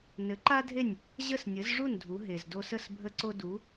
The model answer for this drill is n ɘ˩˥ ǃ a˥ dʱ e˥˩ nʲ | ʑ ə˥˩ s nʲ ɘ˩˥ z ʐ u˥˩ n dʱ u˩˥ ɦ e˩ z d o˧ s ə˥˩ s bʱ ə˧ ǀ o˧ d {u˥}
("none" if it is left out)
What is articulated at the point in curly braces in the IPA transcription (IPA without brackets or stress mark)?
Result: u˩˥